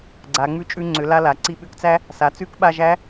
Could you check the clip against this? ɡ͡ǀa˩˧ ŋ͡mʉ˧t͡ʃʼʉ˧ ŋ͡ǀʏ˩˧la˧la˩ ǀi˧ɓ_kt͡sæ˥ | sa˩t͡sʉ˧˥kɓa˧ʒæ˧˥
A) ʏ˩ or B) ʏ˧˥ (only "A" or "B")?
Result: B